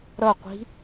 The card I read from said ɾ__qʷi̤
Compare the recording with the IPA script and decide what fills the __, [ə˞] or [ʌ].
ʌ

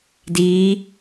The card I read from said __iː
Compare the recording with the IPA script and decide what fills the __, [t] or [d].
d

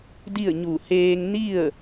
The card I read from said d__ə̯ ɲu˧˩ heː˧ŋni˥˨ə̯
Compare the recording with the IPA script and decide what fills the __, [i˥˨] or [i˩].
i˥˨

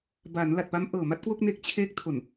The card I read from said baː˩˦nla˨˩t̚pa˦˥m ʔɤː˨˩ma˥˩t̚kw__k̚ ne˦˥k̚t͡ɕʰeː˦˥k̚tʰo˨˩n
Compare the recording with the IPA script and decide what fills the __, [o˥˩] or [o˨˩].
o˥˩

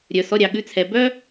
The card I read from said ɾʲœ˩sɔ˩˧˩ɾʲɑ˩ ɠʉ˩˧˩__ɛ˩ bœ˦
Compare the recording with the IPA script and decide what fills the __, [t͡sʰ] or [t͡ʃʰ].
t͡sʰ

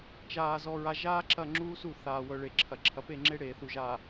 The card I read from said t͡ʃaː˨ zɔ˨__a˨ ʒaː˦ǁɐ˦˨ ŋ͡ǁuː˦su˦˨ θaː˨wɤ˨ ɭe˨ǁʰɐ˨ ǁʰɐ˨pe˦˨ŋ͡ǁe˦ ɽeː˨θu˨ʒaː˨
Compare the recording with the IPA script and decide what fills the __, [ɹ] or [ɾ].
ɹ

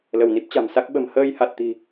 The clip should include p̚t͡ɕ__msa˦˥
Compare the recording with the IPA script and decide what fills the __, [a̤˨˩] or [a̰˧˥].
a̤˨˩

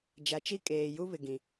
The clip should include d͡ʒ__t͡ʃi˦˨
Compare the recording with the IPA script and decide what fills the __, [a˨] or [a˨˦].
a˨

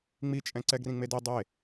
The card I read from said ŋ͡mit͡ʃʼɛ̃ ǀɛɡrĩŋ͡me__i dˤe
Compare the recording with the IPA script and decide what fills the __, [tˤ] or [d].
d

